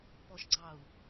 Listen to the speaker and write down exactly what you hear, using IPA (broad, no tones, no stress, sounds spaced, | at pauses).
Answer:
p ɔ ʃ ɡ͡ǀ ɑ u̯